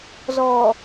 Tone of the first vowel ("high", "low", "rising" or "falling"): low